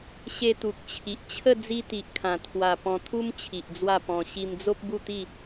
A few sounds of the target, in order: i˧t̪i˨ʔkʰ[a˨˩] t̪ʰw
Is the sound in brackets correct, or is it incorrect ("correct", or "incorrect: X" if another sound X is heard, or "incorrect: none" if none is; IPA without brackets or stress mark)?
incorrect: ã˨˩